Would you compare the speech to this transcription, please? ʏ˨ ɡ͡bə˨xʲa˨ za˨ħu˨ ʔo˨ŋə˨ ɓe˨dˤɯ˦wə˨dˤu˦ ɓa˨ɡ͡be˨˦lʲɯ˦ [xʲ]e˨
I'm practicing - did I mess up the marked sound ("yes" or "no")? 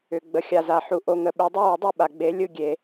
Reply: yes